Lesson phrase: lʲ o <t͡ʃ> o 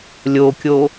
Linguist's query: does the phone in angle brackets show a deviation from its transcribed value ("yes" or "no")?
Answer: yes